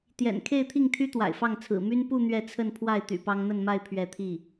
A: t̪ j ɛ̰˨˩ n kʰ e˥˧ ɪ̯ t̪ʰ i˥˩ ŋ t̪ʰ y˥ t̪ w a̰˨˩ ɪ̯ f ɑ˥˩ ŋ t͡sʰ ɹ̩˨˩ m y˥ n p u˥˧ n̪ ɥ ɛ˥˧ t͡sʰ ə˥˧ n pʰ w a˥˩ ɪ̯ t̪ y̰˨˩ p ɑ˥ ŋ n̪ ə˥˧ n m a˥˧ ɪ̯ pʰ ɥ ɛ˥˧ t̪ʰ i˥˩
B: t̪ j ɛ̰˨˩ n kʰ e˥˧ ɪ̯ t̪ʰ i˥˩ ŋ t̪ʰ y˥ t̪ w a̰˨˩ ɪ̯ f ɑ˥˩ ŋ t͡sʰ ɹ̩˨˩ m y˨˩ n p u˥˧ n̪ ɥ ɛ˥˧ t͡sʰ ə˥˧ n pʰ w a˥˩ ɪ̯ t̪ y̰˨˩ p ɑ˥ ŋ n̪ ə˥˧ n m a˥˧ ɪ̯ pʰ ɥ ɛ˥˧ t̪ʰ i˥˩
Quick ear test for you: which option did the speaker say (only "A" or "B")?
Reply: A